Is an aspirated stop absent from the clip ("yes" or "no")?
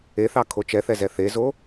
no